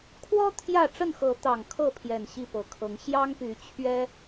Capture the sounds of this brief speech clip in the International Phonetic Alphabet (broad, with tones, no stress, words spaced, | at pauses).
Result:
kʰwɔ˦ t̪ʰjä˥˨ ʈ͡ʂə˥˨nxɤ˨˦ t̪ɑ˨˩ŋkʰɤ˥˨ pʰjɛ˨˩n ɕi˥˨pɤ˨˩kʰɤ˨˦ŋ ɕjɑ˦ŋpy˨˦ t͡ɕʰɥɛ˦